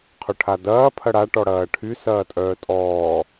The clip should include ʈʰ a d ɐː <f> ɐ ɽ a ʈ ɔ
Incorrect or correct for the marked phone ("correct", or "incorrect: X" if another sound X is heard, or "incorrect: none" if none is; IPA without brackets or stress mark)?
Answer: incorrect: pʰ